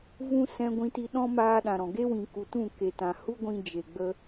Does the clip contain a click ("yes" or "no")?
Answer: no